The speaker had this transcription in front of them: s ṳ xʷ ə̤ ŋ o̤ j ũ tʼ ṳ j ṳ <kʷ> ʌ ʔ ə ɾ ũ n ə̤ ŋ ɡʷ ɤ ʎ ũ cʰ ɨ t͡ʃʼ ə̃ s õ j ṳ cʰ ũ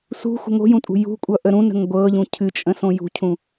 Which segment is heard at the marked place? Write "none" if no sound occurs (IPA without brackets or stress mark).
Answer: kʷʼ